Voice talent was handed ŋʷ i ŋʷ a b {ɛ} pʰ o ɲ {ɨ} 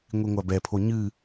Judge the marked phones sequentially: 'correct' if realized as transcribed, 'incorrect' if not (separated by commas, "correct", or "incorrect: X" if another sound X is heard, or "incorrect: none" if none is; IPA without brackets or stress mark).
correct, correct